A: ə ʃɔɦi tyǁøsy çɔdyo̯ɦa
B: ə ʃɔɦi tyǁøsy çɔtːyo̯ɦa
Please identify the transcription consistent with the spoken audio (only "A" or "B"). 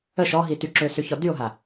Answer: A